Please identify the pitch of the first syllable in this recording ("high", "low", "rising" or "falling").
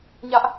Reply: high